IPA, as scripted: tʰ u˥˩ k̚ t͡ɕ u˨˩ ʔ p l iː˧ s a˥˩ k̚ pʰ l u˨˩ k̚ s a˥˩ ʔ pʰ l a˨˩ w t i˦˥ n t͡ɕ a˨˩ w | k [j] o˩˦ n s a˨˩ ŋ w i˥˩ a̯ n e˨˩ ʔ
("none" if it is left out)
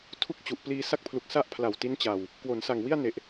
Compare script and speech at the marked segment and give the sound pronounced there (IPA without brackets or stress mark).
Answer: w